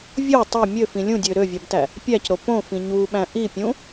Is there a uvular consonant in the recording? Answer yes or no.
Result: no